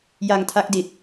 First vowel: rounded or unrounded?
unrounded